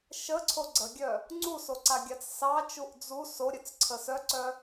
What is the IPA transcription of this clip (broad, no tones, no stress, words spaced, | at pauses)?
ʃəǀʰo ɡ͡ǀəɡʲœ | ŋ͡ǀusoǀaɡʲat͡s sɑt͡ʃuʔ d͡zu soɾʲœt͡sǀʰə sœǀœ